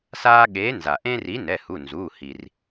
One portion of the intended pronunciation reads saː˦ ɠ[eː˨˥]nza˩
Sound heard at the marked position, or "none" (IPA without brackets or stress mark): eː˨˥